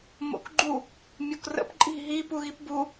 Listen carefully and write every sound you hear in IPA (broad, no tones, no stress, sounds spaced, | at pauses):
m o̰ k ɡ͡ǃ u | mʲ o k r ə̰ p ǃʼ i̤ ɦ i p u ɣ i p b u